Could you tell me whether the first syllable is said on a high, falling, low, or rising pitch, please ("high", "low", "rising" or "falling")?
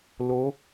rising